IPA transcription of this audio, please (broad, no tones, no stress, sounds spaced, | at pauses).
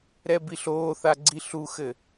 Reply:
ɾ ɛ b i ɬ oː θ a ɡ͡ǀ i ɬ u x ɘ